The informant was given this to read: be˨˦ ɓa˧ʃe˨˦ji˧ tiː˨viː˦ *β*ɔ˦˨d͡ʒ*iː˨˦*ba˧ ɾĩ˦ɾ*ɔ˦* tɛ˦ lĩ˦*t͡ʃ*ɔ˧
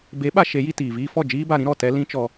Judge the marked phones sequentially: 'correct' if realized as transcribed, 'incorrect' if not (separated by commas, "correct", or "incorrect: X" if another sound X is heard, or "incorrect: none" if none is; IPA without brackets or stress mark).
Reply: incorrect: f, incorrect: iː˦, incorrect: ɔ˦˨, correct